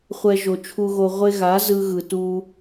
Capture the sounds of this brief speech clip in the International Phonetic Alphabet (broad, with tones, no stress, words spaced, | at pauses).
χʷɛ˧ʒo˨ t͡ʃʰu˧ɣo˧ʁʷe˦ ɣa˨˦ zɯ˦ɣɯ˧ tu˧